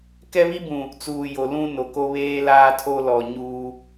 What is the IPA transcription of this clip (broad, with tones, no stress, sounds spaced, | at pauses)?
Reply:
k ɛ˦ β i˦ b ũ˨ | t͡s uː˨ j o˨ l ũ˦ n o˨ k o˦ β eː˦ l aː˦ tʰ o˦ l ɔ˨ ɲ uː˦